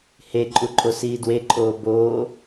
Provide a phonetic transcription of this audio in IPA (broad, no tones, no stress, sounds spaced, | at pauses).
h e ǃʼ u ǃʼ o s iː d w e ǃʼ oː b oː